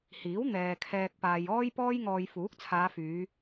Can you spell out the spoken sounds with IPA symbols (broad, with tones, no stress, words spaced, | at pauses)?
hiː˨˥wn̪ɛː˨ kʰɛː˨k̚paː˨j ɔː˥jpɔː˥jŋɔː˧j fuː˨˥k̚t͡sʰaː˨˧fyː˨˧